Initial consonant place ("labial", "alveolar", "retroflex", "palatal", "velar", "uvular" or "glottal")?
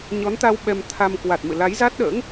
palatal